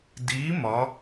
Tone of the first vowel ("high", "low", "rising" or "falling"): rising